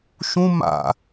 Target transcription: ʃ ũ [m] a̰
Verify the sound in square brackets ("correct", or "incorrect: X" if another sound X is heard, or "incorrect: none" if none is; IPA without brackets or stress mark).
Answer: correct